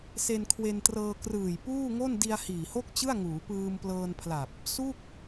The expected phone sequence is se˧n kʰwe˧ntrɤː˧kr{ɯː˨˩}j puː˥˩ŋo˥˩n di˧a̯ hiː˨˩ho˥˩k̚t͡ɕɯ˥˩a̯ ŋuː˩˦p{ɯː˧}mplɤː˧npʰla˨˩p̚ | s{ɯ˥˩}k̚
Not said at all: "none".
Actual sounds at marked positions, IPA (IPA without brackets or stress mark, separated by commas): ɯː˨˩, ɯː˧, u˥˩